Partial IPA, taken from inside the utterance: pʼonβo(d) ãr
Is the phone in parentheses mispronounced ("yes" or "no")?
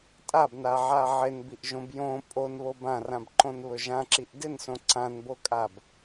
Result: yes